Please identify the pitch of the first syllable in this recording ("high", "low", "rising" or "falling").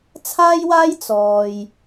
high